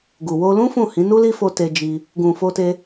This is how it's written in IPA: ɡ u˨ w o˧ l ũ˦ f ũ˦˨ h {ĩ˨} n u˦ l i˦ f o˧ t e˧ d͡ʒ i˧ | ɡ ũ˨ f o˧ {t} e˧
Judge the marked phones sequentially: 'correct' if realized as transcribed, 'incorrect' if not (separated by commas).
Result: incorrect, correct